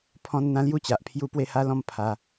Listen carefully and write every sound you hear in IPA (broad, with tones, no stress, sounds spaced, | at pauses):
pʰ ɔ̃˦ n n̪ ã˦ l j u˥˧ t͡ɕ a˨ ʔ pʰ j u˦ p w e˥˧ h a˦ l ɔ̃˥˧ m pʰ a˧